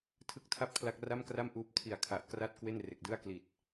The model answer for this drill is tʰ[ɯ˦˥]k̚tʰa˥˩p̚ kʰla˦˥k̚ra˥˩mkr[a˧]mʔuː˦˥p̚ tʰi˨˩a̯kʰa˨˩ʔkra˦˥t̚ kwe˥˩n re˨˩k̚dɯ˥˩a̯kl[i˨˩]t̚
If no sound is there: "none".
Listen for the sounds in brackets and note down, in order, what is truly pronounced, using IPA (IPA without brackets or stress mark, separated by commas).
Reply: ɯ˦˥, a˥˩, i˨˩